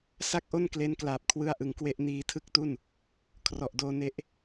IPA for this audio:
s a˥˩ k̚ ʔ o˥˩ n k l e˦˥ n k l aː˨˩ p̚ kʰ w ɯ˧ a̯ ʔ ɯ˨˩ ŋ k w e˦˥ ʔ n iː˧ tʰ ɯ˥˩ k̚ t u˥˩ n | kʰ r ɔ˨˩ ʔ d oː˧ n e˦˥ ʔ

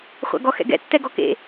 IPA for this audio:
χʷ a̰ ɡ ɔ x ɛ̰ ɡ ɛ̰ tː ɛ ɡ ɔ k ḛ

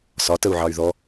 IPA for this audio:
s ɒ t ə u̯ ʕ ɑ y̯ ð ɔ

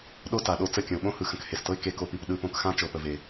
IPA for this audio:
ɗ o˦ t a˨ ɗ o˧ t͡s ə˦˨ kʲ ə̃˨ ʊ̯ ɓ õ˦ h ɯ˨ x ə̃˧ k h e˨ s t ɤ˦ ɪ̯ k e˧ k o˧ p i˧ p ɗ ɯ˧ p õ˧ k x ã˦ t͡ʃ ɤ˧ p ə˧ v e˧

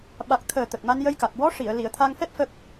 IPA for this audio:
ɓ a˨˩ k̚ t̪ʰ əː˨˩ t̪ ə˨˩ k̚ m a˧ n j ə˧ j k a˨˩ k̚ w ɔ˧˥ ʂ i˨˩˨ ə̯ l i˨˩˨ ə̯ t̪ʰ a˧ ŋ f ɛ˦˥ p̚ f ə˦˥ k̚

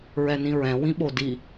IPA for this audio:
ɹ ɛ n ĩ ɹ ɛ̃ w ĩ ɓ o d i

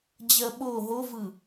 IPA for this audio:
d͡ʑ ɜ ɓ o ɦ o v ɯ

